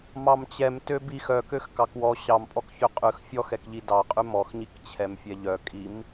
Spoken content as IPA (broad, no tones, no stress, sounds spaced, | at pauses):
m ɑ m t͡ɕ ɛ m t ø b i x œ k ø x k ɑ k w ɔ ɕ ɑ m pʼ ɔ k ç ø qʼ ʉ x fʲ ɔ x ɛ k ʎ i d ɑ qʼ ʉ m ɔ x ɲ i k t͡ɕʰ ɛ m fʲ ɛ ʎ œ kʼ i m